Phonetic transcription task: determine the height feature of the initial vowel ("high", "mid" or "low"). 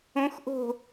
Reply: mid